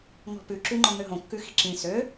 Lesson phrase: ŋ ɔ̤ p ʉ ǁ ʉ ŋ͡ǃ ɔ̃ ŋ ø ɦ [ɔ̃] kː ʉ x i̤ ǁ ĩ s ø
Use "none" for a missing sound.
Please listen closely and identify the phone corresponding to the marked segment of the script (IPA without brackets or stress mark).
õ